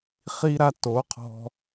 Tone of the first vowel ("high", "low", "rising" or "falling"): high